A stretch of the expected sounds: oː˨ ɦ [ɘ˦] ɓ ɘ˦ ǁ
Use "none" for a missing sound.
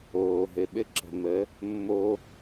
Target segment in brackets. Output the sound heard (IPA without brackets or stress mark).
ɘ˨